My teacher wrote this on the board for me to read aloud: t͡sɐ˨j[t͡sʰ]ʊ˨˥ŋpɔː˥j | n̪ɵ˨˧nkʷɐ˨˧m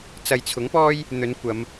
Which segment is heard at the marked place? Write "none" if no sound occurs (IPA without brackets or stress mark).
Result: t͡sʰ